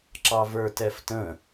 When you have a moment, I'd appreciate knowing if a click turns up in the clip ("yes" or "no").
yes